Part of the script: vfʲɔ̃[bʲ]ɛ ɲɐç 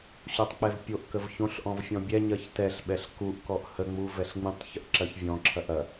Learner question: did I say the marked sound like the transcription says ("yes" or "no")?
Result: yes